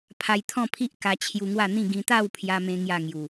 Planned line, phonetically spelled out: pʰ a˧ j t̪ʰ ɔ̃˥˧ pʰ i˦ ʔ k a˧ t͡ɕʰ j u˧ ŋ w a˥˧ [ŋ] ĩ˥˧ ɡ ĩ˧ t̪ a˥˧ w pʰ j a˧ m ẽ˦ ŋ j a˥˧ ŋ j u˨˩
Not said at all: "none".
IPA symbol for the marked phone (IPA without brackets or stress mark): n̪